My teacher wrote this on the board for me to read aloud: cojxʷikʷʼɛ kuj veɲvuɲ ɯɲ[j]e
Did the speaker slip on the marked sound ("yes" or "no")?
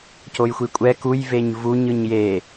no